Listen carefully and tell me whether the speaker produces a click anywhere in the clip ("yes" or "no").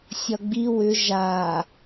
no